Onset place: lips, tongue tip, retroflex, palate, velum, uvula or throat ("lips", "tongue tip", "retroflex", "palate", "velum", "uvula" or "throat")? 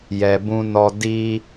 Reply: palate